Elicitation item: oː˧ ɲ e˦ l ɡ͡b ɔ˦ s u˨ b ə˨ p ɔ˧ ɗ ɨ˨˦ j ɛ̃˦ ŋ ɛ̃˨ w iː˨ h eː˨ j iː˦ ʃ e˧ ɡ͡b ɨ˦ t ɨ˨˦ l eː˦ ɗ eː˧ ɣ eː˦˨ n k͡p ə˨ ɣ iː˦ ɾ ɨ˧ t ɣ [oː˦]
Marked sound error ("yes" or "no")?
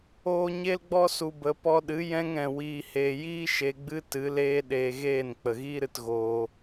yes